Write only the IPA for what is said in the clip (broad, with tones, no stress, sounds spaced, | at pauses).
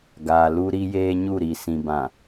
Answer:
ɡ aː˨ l u˦ ɾ i˦ j eː˦ ɲ u˦˨ ɾ i˨ s ĩ˨ b ã˨